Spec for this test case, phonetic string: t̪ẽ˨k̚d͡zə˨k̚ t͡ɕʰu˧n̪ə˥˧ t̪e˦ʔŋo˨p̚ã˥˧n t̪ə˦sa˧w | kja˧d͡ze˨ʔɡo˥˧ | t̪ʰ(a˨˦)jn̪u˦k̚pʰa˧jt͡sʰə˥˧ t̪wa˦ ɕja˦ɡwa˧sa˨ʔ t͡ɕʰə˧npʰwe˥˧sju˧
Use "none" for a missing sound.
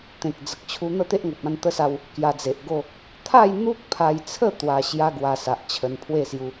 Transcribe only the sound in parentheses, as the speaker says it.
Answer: a˥˧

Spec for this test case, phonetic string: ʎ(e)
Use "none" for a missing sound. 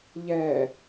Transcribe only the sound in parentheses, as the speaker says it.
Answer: ɛ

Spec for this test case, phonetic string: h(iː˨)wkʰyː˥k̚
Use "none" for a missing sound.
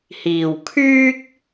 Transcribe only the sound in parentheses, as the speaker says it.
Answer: iː˨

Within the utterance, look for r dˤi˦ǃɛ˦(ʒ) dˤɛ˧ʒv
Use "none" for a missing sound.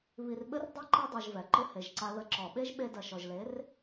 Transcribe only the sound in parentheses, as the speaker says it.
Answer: none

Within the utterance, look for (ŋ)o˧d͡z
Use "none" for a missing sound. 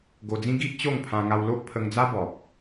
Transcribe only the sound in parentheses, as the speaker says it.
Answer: ɡ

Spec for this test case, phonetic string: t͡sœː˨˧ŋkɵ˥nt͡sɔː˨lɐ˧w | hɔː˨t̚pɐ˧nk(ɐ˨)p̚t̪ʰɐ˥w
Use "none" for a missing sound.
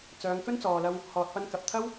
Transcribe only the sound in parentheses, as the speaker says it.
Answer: ɐ˨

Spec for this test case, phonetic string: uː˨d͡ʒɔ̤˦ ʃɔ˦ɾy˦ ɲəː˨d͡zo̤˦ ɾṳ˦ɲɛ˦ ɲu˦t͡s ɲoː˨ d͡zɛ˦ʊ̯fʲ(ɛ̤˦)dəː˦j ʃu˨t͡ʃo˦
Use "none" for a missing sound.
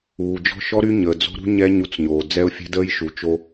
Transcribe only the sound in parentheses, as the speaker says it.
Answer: ɛ̤˦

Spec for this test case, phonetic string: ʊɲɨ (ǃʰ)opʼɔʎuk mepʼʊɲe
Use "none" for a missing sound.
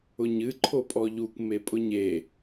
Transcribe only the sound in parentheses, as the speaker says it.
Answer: ǃʰ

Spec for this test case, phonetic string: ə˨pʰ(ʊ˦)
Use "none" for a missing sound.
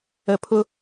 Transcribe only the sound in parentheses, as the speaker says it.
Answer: ʊ˦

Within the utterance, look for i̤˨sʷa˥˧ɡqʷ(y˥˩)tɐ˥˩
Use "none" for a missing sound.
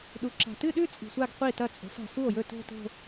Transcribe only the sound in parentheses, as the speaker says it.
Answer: i˥˩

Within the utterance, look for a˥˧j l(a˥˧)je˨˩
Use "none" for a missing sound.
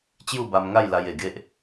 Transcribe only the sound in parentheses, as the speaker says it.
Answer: a˧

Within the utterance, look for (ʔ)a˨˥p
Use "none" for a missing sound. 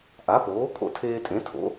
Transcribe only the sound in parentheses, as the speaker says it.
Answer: ʔ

